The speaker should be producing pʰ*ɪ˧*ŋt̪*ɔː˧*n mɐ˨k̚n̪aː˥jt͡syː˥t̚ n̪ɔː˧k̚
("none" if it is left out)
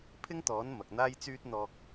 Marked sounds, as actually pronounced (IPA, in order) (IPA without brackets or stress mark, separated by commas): ɪ˥, ɔː˨˥